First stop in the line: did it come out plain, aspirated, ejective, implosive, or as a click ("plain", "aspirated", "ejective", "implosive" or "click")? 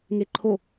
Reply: click